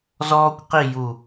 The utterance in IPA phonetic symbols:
zɔː˥kʷqi˥˧ju˧˩

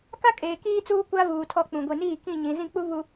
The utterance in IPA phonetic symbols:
ka˦kʼeː˨ kiː˦t͡suː˦ kʷa˦vuː˨tʰɔ˦˨ k͡pũ˨ɡʷi˨niː˦˨ kĩ˦˨ ɲĩ˨ zĩ˦˨k͡pu˦ βu˦

